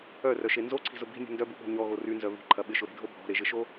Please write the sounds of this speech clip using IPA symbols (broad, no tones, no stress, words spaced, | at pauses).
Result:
œrœʃe nzoǀʰi̤zʊ bi̤nʲṳ ndœbuɓo̤ ɲɔɣo rynzœ βi̤ǃʰɐ ɓɪʃʊɾe̤dʱo bʱɔ̤ɾeʒɪʃo